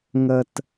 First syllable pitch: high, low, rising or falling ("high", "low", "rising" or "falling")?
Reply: low